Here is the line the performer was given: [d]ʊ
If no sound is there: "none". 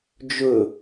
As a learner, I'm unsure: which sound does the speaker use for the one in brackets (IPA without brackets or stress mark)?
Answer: d͡ʒ